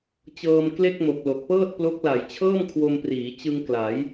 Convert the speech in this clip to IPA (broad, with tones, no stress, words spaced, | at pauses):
t͡ɕɤː˧m kle˥˩k̚mo˨˩k̚ lo˨˩k̚pɤː˥˩t̚plo˦˥k̚la˨˩j t͡ɕʰɤː˥˩mkʰwo˧mpriː˩˦ t͡ɕɯ˧ŋ kla˩˦j